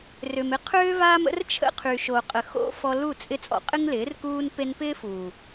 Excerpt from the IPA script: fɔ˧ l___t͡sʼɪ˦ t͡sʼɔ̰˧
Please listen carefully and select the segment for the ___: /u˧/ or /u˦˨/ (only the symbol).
u˦˨